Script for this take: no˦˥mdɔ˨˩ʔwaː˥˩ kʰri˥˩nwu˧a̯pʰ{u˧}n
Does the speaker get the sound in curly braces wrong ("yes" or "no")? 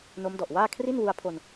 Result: yes